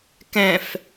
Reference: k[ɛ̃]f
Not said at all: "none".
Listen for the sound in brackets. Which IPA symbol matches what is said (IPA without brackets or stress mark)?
ɛ̃